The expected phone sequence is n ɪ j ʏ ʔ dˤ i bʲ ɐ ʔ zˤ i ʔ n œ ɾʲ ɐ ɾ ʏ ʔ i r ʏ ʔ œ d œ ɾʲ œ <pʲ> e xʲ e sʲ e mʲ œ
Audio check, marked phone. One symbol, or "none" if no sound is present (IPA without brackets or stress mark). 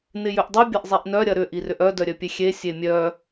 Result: pʲ